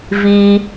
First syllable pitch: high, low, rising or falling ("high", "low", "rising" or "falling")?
high